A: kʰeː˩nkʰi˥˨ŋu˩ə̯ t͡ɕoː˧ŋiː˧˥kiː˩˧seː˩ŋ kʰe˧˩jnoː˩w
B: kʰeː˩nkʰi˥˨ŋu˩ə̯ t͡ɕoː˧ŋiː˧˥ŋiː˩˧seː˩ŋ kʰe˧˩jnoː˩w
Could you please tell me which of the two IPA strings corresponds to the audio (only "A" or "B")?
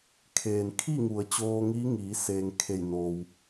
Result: B